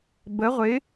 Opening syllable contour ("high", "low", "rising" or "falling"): rising